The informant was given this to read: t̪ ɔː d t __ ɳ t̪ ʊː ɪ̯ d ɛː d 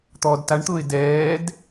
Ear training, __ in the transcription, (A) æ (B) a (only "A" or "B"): B